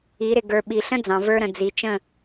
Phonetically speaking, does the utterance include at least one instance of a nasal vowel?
yes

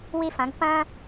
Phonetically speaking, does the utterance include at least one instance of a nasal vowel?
yes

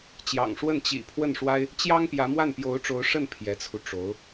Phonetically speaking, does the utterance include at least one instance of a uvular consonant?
no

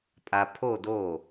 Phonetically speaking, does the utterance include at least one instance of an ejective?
yes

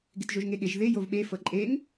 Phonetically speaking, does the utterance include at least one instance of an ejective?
yes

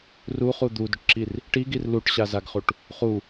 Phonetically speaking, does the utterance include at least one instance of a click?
yes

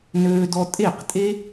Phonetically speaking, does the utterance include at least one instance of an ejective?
yes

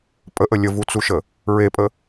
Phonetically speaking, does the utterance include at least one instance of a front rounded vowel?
no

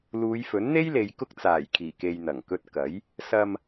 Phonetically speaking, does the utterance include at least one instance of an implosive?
no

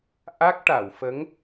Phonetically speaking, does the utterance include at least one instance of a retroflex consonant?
yes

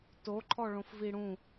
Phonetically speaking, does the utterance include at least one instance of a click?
yes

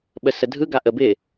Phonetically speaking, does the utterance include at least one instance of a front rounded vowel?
no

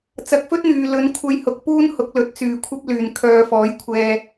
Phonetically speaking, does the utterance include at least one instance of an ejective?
no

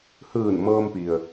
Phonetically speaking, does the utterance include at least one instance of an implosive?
no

